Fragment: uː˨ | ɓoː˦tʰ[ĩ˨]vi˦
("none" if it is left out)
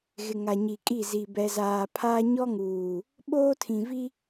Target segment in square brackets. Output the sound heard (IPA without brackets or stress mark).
ĩ˨